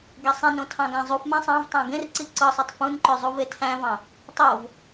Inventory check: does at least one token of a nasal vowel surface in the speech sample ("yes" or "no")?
yes